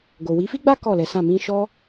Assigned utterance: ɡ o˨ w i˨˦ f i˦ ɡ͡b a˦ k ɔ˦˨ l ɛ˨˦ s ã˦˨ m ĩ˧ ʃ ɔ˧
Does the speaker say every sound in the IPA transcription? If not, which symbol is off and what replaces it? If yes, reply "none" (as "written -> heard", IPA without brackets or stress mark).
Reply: none